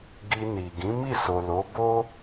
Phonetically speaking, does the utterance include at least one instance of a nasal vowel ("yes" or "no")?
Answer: yes